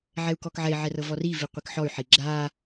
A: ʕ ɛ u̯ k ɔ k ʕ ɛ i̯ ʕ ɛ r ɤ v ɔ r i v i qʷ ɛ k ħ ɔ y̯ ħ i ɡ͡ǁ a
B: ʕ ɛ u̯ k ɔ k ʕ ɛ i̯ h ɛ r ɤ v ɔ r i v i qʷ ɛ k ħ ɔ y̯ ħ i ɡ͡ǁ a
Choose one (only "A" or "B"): A